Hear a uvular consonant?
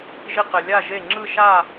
yes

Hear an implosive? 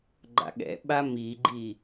yes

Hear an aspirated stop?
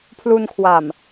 yes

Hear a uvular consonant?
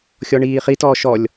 yes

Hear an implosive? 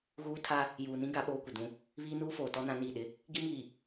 yes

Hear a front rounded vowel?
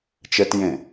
no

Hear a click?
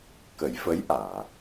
no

